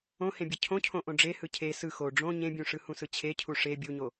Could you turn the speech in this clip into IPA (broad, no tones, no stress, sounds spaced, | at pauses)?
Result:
õ h ẽ bʲ ɯ cʰ õ cʰ õ ʔ õ ɖ͡ʐ e h ɯ cʰ e s ɯ x o ɖ͡ʐ õ ɲ ẽ bʲ ũ ʂ ɯ h ũ s ɯ t͡ɕʰ e cʰ u ʂ e bʲ u ɲ o